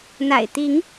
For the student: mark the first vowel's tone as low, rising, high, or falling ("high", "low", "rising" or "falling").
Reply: low